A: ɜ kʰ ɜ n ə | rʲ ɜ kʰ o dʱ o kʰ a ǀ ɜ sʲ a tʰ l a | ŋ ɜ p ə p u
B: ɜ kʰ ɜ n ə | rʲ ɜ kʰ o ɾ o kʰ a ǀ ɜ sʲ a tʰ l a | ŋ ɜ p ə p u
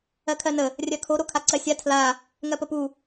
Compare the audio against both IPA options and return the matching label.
B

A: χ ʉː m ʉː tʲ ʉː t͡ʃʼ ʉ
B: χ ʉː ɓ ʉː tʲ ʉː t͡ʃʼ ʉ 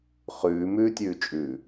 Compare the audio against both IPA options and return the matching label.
A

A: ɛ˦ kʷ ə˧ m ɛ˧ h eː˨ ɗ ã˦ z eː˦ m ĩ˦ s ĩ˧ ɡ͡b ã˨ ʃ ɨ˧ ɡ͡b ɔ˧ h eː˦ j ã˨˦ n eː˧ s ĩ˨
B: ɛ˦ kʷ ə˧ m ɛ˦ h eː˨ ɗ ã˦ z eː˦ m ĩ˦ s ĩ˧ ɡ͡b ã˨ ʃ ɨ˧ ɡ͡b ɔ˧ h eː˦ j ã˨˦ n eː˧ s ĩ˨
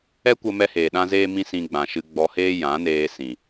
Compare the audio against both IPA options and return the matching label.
A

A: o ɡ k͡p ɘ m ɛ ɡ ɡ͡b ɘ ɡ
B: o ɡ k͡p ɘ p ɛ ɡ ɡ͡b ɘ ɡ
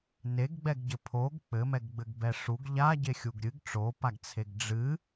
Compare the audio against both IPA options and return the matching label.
A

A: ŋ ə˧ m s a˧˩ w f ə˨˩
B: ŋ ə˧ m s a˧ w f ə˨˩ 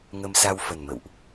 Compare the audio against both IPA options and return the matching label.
B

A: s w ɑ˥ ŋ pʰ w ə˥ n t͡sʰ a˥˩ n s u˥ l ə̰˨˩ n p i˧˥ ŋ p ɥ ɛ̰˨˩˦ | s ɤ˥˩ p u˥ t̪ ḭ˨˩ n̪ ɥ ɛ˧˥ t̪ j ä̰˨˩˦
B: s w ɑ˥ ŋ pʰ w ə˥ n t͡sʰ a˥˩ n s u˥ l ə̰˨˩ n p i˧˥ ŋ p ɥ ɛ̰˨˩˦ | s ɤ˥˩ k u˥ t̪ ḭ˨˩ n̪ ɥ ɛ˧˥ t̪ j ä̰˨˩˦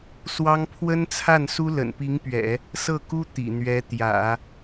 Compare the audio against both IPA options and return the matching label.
B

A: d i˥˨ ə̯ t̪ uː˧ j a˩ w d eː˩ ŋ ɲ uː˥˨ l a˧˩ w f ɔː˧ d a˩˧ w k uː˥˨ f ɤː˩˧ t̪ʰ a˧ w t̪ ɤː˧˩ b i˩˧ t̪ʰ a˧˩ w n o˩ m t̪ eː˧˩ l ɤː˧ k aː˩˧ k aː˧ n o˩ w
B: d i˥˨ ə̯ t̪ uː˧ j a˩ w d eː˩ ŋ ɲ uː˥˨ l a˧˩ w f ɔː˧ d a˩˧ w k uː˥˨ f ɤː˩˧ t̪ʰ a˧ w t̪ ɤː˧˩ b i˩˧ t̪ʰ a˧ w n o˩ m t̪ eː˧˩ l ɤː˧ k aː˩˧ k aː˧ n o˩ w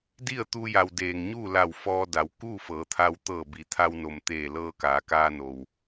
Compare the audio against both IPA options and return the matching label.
B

